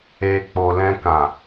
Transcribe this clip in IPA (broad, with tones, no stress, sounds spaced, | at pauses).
e˨ k͡p o˨ l ɛ̃˧ k ã˨